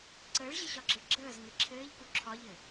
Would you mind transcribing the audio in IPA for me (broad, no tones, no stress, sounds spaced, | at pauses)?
ǀ əː ɭ ʑ ɘ ɕ ɒ ɡ͡ǁ ə ɭ ɡ͡ǁ əː z ŋ ɘ ǁʰ ɘː ʎ k u ǁʰ ɒ ʎ ɘ